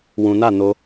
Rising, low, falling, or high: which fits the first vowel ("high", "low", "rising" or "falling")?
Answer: low